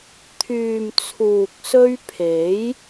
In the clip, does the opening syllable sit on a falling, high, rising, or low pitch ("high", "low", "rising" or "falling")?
low